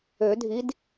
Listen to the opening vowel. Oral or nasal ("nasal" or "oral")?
oral